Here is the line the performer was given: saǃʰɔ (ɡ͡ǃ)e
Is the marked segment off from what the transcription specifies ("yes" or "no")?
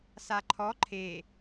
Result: yes